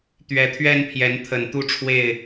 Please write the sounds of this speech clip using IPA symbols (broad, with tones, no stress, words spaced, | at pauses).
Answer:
t̪ɥɛ˨˦t̪ʰɥɛ˦n pʰjɛ˨˦nt̪ʰə˨˩n t̪u˥˨ʈ͡ʂʰwe˥˨ɪ̯